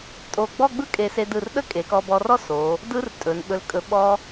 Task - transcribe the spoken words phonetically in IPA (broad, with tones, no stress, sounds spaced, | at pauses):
tʼ o˧˩ ɡ͡b ɔ˥˧ ɡ͡b ɯ˥ kʼ e˧˩ s e˧ d ɯ˧˩ r ɗ ə˥ kʼ e˩˧ k ɔ˧ b ɔ˧ r ɔ˥ s o˩˧ | d ɯ˧ r tʼ ɵ˩˧ n ɓ ɵ˧ l kʼ ɵ˧ ɓ ɔ˥